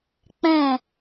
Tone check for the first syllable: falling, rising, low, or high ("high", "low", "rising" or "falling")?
falling